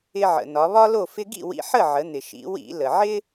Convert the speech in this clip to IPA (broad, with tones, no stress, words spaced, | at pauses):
ɪ˧ ʕə̰˩ nɒ˩˧βɒ˥lo˥˨ fɪ˧ɡḭ˥˨ wḭ˧ħə˥˨ʕə˩˧n̪ɪ˩ ʃḭ˩˧wḭ˧˩˧lə˩ ʕɪ˥